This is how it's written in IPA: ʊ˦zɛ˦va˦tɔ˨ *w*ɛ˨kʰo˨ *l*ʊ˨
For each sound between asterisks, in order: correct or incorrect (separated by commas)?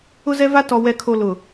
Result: correct, correct